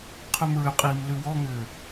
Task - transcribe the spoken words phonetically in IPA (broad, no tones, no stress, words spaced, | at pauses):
qʰʉmɹʏqʼiːm lʉwɔŋʏː